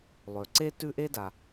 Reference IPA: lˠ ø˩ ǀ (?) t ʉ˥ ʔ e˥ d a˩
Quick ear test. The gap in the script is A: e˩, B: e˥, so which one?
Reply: B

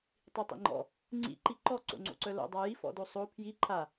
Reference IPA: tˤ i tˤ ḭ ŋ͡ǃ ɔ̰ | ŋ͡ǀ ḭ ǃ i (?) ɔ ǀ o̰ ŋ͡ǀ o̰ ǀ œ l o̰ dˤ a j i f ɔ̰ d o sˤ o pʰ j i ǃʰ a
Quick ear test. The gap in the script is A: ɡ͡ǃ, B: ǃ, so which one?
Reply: B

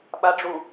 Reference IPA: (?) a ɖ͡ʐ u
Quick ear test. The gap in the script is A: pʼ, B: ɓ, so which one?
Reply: B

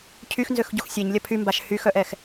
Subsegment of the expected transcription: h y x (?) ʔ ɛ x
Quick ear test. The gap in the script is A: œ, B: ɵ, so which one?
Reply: A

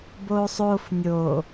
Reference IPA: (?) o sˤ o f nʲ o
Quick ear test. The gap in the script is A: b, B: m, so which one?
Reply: A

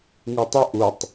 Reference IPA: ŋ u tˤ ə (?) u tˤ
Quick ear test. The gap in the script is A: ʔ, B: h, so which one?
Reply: A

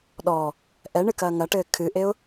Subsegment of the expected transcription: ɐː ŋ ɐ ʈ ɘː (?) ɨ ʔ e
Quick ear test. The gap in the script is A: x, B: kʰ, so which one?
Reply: B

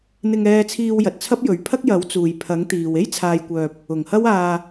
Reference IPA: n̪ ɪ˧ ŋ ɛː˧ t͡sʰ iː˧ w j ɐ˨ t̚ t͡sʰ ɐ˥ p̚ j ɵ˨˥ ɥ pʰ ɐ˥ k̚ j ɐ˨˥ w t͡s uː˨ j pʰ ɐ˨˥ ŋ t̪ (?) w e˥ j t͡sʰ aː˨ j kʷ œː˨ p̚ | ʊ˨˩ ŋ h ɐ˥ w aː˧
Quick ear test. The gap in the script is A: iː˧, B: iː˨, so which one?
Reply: B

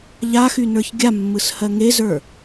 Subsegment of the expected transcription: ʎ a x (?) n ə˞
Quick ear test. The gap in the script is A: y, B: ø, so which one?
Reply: A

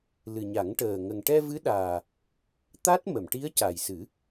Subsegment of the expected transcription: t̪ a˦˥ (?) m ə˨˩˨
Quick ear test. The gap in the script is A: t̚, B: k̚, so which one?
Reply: A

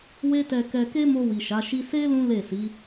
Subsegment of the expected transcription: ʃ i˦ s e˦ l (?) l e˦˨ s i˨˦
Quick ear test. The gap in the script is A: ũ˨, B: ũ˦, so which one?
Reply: B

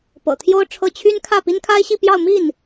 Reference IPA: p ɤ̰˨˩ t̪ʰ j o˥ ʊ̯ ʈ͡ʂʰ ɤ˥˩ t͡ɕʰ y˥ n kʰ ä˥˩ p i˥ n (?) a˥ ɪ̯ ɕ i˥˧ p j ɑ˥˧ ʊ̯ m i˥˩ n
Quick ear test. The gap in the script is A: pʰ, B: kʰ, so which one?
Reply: B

